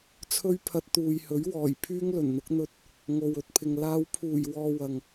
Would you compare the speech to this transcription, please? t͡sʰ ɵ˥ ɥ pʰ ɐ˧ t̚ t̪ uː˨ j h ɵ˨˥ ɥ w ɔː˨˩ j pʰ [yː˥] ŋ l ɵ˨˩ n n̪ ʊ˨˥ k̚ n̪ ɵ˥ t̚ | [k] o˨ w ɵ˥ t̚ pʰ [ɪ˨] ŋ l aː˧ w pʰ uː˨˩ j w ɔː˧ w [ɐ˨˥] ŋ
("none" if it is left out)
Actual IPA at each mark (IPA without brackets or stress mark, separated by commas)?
yː˥, ŋ, ɪ˨, ɐ˨